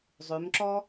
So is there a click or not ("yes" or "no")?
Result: yes